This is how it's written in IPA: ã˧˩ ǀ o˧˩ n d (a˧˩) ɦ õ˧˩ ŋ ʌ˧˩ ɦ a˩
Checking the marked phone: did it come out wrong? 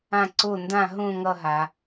yes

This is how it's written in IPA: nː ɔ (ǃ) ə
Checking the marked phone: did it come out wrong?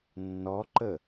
no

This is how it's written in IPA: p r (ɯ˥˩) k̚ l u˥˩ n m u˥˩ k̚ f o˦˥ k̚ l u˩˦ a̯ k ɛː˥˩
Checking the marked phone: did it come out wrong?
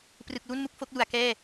yes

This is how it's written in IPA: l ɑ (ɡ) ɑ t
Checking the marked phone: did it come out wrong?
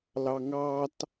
yes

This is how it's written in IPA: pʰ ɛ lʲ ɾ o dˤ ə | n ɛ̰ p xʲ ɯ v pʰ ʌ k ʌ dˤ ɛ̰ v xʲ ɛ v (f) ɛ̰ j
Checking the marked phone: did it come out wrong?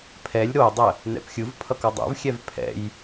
yes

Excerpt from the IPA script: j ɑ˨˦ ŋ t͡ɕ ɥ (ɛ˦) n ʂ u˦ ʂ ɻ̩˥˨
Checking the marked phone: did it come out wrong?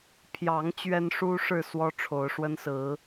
no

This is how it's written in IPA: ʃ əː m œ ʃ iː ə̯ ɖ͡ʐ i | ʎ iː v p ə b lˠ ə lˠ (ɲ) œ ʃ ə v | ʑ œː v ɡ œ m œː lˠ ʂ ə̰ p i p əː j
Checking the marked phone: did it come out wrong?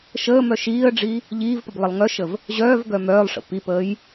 yes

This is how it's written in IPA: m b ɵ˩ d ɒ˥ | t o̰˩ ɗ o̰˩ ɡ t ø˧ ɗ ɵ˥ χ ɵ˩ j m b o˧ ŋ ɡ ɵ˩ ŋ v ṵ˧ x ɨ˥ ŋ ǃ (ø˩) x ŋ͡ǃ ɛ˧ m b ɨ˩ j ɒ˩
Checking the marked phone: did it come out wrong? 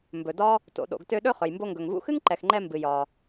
yes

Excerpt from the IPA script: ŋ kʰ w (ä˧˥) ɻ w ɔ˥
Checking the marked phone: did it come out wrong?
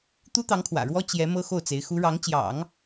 yes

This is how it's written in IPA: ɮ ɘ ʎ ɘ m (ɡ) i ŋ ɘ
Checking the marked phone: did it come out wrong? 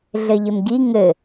no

